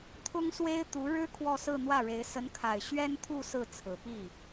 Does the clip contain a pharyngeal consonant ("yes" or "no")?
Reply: no